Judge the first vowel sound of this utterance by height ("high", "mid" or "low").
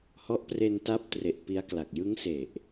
mid